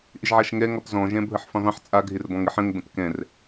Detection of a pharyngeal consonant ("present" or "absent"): present